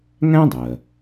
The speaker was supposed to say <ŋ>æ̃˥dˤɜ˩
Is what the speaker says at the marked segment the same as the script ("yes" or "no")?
yes